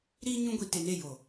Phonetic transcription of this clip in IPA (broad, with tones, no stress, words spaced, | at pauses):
ɾiː˧ ɲũ˧ɡʷi˨ te˨ne˦˨ jo˨